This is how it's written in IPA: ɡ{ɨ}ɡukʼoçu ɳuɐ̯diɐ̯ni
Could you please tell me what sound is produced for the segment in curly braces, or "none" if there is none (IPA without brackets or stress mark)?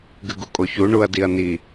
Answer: ɨ